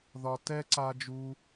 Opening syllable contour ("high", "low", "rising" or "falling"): high